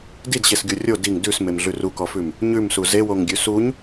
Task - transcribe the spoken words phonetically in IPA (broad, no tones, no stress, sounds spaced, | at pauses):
d i d ɕ e s ɡʲ o rʲ o d i ŋ d ʉ s m e m ɮ ʉ r u k ɔ f ʉ m | ɲ ʉ m s u z e w o ŋ ɡʲ ʉ s u ɲ